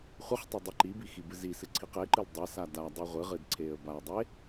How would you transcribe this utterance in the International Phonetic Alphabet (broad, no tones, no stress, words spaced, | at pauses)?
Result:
χʷɨχtˤe dˤiǃibi xibɨzisɨ ǀʰiqeǃɨl dˤe sadadˤi ʁʷɨʁɨd ǀʰeə̯baə̯dˤe